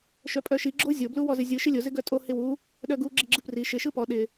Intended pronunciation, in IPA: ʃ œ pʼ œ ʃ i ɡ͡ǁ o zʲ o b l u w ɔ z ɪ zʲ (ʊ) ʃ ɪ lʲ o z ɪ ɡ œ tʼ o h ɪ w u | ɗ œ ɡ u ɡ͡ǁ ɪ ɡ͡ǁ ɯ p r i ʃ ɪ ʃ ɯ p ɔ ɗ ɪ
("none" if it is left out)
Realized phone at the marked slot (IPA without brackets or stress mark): ɯ